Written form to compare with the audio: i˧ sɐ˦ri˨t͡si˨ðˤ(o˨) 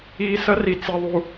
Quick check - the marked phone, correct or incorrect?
incorrect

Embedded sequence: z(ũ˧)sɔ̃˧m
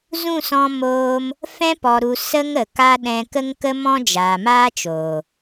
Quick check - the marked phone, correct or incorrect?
incorrect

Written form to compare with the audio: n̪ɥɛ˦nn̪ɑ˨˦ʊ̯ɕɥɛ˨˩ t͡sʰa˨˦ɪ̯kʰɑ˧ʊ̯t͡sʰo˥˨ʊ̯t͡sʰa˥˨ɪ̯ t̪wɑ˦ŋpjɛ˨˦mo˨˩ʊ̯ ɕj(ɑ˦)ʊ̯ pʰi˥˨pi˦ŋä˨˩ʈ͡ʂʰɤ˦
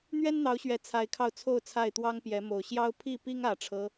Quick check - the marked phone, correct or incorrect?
correct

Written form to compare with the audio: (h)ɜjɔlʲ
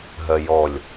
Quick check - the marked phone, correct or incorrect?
incorrect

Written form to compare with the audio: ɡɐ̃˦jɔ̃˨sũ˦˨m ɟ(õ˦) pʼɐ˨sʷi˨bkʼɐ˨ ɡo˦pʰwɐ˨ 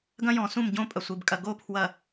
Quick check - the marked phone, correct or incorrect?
correct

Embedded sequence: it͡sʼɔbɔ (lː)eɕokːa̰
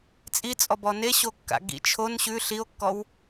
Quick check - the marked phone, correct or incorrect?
incorrect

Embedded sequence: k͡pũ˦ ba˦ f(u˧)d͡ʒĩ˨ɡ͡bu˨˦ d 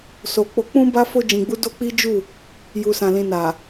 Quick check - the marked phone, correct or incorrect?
incorrect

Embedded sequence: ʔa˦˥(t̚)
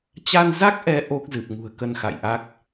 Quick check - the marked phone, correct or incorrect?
incorrect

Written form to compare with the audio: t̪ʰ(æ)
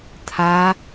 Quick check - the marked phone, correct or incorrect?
incorrect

